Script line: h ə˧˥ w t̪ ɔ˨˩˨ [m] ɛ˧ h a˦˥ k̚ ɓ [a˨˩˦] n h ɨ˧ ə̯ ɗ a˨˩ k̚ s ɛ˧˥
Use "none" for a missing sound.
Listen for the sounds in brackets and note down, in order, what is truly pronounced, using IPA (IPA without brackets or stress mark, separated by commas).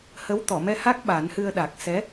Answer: m, a˨˩˦